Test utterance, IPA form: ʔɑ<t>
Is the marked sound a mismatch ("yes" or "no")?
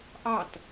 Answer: no